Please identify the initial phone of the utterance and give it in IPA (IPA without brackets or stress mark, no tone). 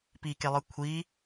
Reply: p